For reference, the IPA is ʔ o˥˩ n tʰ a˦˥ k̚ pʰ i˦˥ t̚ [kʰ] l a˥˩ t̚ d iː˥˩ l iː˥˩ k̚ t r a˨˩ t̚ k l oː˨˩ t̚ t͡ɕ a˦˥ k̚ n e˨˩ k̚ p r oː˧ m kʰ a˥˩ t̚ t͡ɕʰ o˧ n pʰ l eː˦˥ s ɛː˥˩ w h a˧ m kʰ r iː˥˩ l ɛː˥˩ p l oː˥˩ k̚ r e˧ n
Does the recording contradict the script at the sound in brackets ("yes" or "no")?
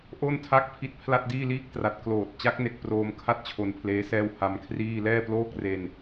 yes